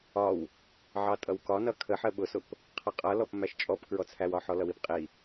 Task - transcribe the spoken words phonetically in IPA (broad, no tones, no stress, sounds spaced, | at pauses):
ɒ w | ʕ ɑ tʼ ʌ w k ɒ n ʌ kʰ ə ħ ɜ ɓ ʊ s ʊ p | qʰ ʌ qʼ ʌ l ɔ p m æ ʃ t͡ʃʼ ɔ p k ɹ ɔ t͡sʰ æ w ɒ ħ ɔ l ʌ w i p qʼ i